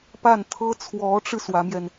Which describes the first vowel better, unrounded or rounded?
unrounded